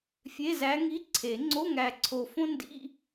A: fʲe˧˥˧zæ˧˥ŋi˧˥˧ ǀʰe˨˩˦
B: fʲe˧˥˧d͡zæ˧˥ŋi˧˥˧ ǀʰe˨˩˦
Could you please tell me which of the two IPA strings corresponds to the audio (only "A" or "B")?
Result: A